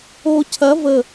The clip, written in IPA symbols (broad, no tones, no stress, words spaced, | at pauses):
o cʰɐ və